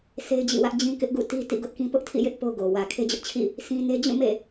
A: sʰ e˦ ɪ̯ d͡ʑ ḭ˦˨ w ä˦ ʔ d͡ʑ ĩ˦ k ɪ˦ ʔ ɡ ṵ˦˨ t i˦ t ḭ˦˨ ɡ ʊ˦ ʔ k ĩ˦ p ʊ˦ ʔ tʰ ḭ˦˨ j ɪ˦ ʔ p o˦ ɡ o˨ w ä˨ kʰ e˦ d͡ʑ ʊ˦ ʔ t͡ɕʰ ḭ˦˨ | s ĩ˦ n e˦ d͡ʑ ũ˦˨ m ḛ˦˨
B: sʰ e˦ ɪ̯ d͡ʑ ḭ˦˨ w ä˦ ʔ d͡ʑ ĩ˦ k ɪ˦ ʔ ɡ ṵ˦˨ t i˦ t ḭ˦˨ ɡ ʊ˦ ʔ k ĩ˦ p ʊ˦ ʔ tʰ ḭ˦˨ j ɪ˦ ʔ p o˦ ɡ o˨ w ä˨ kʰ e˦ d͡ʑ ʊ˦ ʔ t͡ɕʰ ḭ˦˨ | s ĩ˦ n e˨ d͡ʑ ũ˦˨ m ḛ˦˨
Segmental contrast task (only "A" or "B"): A